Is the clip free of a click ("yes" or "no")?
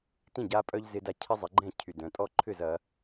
no